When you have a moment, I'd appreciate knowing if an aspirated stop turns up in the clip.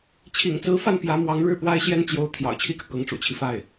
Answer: yes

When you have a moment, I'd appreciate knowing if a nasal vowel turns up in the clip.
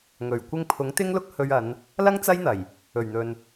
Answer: no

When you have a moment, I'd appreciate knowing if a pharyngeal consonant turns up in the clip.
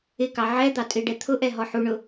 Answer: yes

